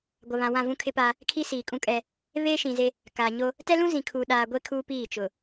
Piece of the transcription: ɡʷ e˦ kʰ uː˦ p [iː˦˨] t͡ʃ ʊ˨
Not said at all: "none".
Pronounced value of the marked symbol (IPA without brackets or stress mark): iː˦˨